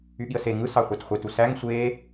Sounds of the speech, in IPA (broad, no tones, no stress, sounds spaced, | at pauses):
y ɠ i ə̯ s e ŋ ɯ s ɑ χʷ æ t χʷ e t u s æ ŋ sʷ e